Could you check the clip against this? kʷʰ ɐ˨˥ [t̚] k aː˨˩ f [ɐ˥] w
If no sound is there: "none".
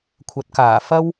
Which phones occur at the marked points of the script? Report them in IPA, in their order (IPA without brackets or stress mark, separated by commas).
t̚, ɐ˥